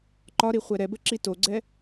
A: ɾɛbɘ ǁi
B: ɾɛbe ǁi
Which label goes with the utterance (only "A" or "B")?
A